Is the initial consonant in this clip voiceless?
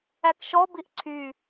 yes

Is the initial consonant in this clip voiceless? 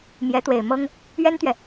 no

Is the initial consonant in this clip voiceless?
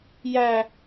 no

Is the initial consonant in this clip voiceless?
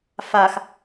yes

